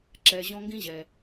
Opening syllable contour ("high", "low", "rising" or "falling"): low